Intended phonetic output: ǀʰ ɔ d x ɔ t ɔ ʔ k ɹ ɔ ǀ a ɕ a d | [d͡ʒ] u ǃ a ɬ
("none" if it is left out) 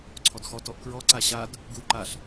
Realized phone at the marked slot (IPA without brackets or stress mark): ɡ